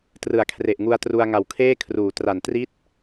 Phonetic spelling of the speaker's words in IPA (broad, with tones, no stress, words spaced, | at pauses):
trɯ˩˦a̯ kʰre˨˩ʔŋu˧a̯tru˧a̯ ŋa˨˩wkʰeː˥˩kʰruː˩˦ tra˨˩ntri˥˩t̚